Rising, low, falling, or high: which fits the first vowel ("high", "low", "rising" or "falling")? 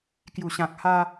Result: low